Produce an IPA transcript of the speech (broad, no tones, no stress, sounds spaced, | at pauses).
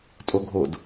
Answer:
tʼ o ɡʱ o d